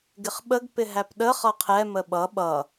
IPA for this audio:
ɡ ɪ χ ɓ ə ɡ p ɪ ɦ æ p ɗ ə χ ʌ qʰ ɛ m ə ɓ ʌ ɓ ʌ

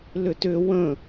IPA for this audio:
l ʏ t ʏ w ə̃

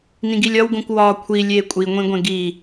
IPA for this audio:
n ĩ ɡ i lʲ ɒ w ɡ õ kʷ w ɒː kʷʰ i lʲ eː kʷʼ i ŋʷ ĩ ɡʷ ẽ ɡ i

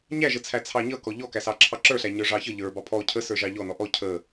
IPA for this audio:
ɲ æ ʒ ə t͡sʰ æ t͡sʰ ɑ ɲ ʌ k ɔ ʎ ɔ k æ s ɑ ǁʰ ɑ ǁ ə˞ ɬ æ ɲ ə˞ ʐ ɑ ç ʌ ʎ ə˞ b ɑ pʰ ɔ cʰ ə s ə˞ ʒ ɑ ʎ ɔ n ɔ ʔ ɔ cʰ ə

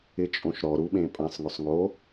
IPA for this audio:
ɪ t͡ʃʼ õ ʃ ɾ ɔ ɾ u ɓ ẽ pʼ ã sˤ ŋ ʊ sˤ ŋ o

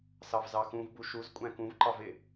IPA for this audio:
s ɑ v z ɑ x ũ v b u ʃ u z kʷʼ æ̃ k ũ v ǃ ɑ v ɪ

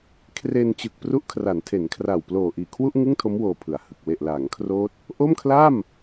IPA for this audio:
kʰ r e˧ n t͡ɕ ɯ˨˩ k̚ p r u˦˥ ʔ kʰ r a˩˦ n tʰ e˩˦ n kʰ r a˨˩ w p l oː˨˩ ʔ iː˨˩ kʰ w u˥˩ ʔ ŋ ɯ˥˩ ŋ tʰ o˦˥ m w oː˧ pʰ ɯ˩˦ a̯ h ɯ˨˩ k̚ w e˨˩ ʔ l aː˩˦ ŋ kʰ r oː˦˥ t̚ | ʔ o˥˩ m kʰ l a˥˩ m

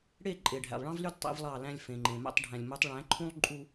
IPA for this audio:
ɽ e˦˨ ǃʼ e˨ ɖʱ æ̰˨ lˠ ɭ ɑ̃˦ v l y˦ d tˤ ḛ˦ v lˠ ɑ˦˨ l æ̃˦ lʲ f ẽ˨ ŋ͡ǃ ẽ˨ m æ̰˦ tˤ ɖʱ æ̃˨ lʲ m u˨˦ tˤ ɭ æ̃˨˦ ǃʰ ũ˦ lˠ ǃʼ u˦

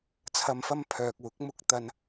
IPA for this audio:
t͡sʰ ɐ˧ m f ɐ˥ m pʰ œː˨ k̚ w ʊ˨˥ k̚ m ʊ˨ k̚ t̪ ɐ˨ n

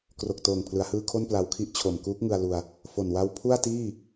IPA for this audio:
k r o˨˩ k̚ t oː˨˩ ŋ pʰ l ɯ˩˦ a̯ h ɯː˧ kʰ o˥˩ n p l a˧ w kʰ i˥˩ ʔ t͡ɕʰ o˨˩ m k uː˦˥ k̚ ŋ ɯ˧ a̯ l u˧ a̯ | f o˨˩ n w a˦˥ w pʰ u˥˩ a̯ t iː˥˩

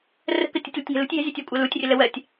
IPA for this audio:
r ə̤ k ə tʲ u tʲ l ə tʲ ŋ ɛ̤ l ṳ tʲ j ɛ̤ zʲ ɜ tʲ ɜ kʷʼ ɜ l u tʲ rʲ ə l ə w ɜ tʲ

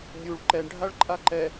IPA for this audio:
nʲ u ɭ ǃ ɛ ɳ ɖʱ a ɭ ǃʼ a ǃ ɛ

